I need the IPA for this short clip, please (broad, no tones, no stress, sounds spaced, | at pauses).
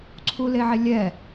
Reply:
ǀʰ u l e ʕ e lʲ ɛ